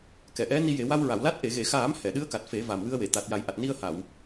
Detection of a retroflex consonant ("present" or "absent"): absent